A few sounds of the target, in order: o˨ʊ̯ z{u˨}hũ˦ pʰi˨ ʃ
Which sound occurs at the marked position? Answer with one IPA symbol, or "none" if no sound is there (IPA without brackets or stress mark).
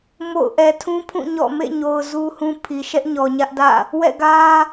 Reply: u˦